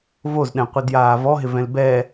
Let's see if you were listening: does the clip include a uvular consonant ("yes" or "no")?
yes